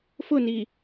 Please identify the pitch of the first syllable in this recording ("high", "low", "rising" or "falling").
falling